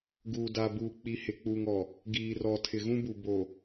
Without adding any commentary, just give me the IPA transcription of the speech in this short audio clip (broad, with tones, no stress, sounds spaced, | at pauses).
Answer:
ɡ uː˨ d a˨ b uː˨ k͡p i˨ h ɪ˨ k͡p uː˨ ŋ ɔ˨ | ɡ iː˨ r ɔ˨ tʰ ɪ˨ ɣ ũ˦ b u˨ b oː˨